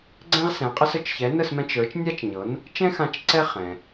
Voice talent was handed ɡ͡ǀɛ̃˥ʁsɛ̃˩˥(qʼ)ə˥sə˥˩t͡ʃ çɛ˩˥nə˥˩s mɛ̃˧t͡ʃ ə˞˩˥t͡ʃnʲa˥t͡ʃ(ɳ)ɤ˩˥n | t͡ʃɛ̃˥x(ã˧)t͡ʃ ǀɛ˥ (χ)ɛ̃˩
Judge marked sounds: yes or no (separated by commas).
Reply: yes, no, yes, yes